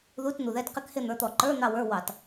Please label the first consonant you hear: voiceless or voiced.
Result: voiced